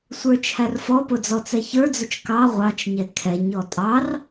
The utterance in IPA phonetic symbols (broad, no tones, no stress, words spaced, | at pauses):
sʷə˞t͡ʃʰærfɔpʊ d͡zɔt͡sɛçə˞d͡zʊt͡ʃ kɑ ʁʷɑt͡ʃɲɛ kʰɛɲ ɔtʼɑr